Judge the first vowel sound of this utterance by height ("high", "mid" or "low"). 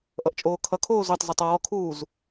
mid